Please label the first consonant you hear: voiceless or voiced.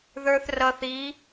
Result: voiced